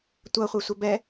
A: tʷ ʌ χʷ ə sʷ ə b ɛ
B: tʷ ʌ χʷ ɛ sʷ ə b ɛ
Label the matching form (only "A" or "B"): B